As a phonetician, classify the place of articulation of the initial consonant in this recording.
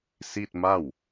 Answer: alveolar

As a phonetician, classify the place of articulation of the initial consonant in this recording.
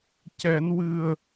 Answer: palatal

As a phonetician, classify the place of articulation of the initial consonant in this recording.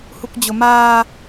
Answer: glottal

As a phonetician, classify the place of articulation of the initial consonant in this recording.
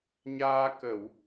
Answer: palatal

